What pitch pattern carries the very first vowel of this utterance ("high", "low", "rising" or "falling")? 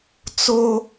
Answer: high